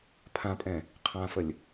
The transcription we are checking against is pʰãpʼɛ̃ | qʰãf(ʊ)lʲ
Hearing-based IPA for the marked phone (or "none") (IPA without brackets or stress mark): ə